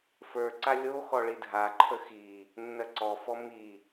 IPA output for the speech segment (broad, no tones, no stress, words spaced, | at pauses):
fə˞ǀa lʲo xɔɭidʱaǃʰə xi | nːɜǀɔfɔ mi